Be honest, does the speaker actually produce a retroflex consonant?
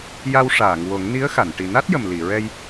yes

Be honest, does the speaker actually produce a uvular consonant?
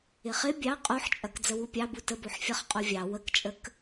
yes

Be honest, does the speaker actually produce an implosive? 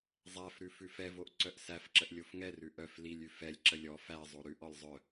no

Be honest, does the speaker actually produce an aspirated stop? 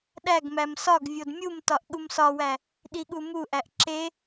no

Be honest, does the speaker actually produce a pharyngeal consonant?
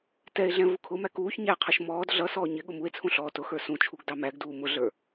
no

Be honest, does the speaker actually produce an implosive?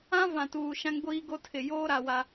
no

